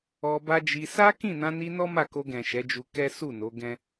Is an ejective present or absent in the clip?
absent